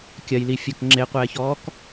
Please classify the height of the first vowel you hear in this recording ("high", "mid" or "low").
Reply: low